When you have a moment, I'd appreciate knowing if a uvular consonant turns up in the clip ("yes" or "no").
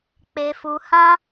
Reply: no